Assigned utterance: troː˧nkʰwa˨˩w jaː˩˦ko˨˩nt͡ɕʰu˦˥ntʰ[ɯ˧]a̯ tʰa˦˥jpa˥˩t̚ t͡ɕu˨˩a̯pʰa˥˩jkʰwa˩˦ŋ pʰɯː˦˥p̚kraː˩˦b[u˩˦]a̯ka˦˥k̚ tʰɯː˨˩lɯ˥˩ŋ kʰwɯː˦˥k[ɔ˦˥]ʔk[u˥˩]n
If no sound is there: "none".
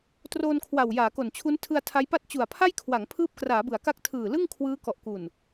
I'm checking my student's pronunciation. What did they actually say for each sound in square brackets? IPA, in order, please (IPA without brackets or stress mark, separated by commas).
ɯ˧, ɯ˩˦, ɔ˨˩, u˨˩